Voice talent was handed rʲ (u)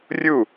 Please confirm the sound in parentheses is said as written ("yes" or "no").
yes